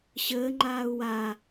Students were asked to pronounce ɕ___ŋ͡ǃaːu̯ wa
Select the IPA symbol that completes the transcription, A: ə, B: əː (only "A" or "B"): B